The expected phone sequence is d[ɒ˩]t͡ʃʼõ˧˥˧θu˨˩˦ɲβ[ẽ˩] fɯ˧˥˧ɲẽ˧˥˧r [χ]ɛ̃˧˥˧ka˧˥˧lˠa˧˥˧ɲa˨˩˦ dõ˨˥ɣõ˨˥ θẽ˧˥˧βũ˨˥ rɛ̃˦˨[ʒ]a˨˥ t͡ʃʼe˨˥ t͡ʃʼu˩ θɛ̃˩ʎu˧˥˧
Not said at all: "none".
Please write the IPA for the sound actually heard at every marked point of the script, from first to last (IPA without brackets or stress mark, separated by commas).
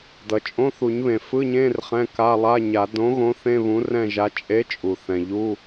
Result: ʌ˩, ẽ˩, χ, ʒ